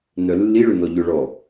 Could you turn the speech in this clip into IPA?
n œ lː i ɭ ʏ n ɔ ʎ ʏ ɭ ɔ

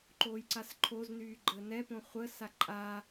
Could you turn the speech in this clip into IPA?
ǃ oː j ǀ a s ǃʰ o z n yː ɡ͡ǃ əː n ɛ p õ χʷ əː s a ǃʼ a

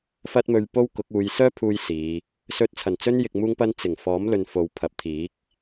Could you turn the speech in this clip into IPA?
f ɐ˥ t̚ m ɵ˧ ɥ p o˥ w k ʊ˨˥ k̚ uː˨˧ j s œː˥ pʰ uː˥ j s iː˨˧ | s ɵ˧ t̚ t͡sʰ ɐ˨˩ n t͡s ɵ˥ n j ɪ˧ k̚ m uː˥ ŋ p ɐ˥ n t͡s ɪ˨˩ ŋ f ɔː˨˥ m l ɵ˨ n f o˨˧ w pʰ ɐ˨˥ p̚ t̪ʰ iː˨˥ k̚

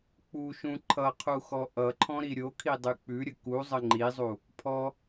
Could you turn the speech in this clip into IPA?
k͡p u ʃ ũ ǃʰ ʌ qʰ u x ɔ ʔ ʌ ǃʰ ɔ̃ ɾ i ɾʲ o kʰ i dˤ ʉ k͡p ʉ ɾʲ ə k u zˤ ə ŋ͡ǃ i zˤ u | pʰ ɔ

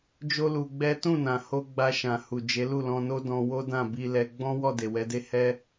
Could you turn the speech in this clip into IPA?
d͡ʒ o˦ l u˧ ɡ͡b ɛ˦ t ũ˦˨ n ã˨ h o˧ ɡ͡b a˧ ʃ ã˨ h u˨ d͡ʒ e˨˦ l u˦˨ l ɔ̃˧ n o˦ d ɔ̃˧ w o˦ d ã˦˨ b i˧ l ɛ˧ ɡ͡b ɔ̃˦ w ɔ˦˨ d e˨ w ɛ˨˦ d e˦ h ɛ˦

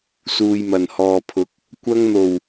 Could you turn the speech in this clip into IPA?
s uː˨ j m ɐ˨˩ n h ɔː˨ pʰ ʊ˨˥ k̚ | kʷ ɐ˧ ŋ n̪ o˨˩ w

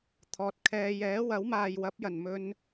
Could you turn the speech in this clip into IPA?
t̪ʰ ɔː˨ t̚ kʰ ɛː˧ j ɛː˨˥ w ɐ˨˥ w m aː˨ j w ɐ˨˥ p̚ j ɐ˨˩ n m ɵ˧ n

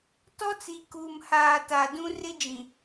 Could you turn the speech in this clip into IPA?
t ɔ˦ t͡s i˨ k uː˨ m h aː˨ t a˨ d ũ˦ r ɪ˦ d͡ʒ ĩ˨

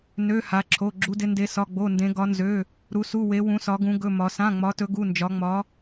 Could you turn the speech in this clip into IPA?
n ø˩˧˩ h a˩˧ ǁʰ o˩˧˩ ɡ͡ǁ u˩˧ d ɪ˩˧ n d e˩˧ s ɒ˩˧˩ ɡ͡b o˩˧˩ n d ẽ˩˧ ɡ ɒ˩˧ n z ø˩˧˩ | ɾ u˩˧ s u˩˧˩ w e˩˧ w ũ˩˧ s ɒ˩˧ ɡ ũ˩˧ ɡ ɵ˩˧˩ m ɒ˩˧ s ã˩˧˩ ŋ͡m ɒ˩˧ t ɵ˩˧ ɡ u˩˧˩ n d͡ʒ ɒ˩˧ ŋ͡m ɒ˩˧

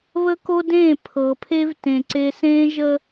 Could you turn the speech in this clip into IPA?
β ə˦ k o˦ d ẽː˦˨ pʰ ɤ˨ pʰ e˦ v t ẽ˨ ǀ e˨ s ẽː˦ ʒ ə˦

